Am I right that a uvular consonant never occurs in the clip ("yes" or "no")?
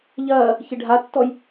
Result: yes